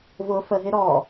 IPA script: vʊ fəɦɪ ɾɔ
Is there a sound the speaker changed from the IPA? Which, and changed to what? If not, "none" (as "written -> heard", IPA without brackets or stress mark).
none